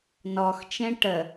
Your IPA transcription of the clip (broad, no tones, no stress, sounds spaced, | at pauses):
n ɔ x t͡ʃ ẽ ʈ ə